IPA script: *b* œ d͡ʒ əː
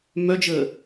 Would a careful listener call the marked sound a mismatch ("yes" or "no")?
yes